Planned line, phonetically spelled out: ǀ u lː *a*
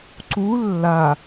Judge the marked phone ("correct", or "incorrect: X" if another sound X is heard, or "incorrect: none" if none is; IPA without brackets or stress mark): correct